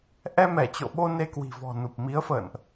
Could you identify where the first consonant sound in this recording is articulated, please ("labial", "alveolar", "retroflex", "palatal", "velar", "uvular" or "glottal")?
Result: glottal